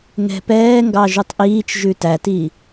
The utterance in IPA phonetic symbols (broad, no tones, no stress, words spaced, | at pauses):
ŋɛ̤pɛːŋɡɑ ʒutˤʔiːt͡ʃʒʉ tæti